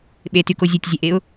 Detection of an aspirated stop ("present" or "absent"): absent